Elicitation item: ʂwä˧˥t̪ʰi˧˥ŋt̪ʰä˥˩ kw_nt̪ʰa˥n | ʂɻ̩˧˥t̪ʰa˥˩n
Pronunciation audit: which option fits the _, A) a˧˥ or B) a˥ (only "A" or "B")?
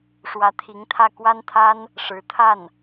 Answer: B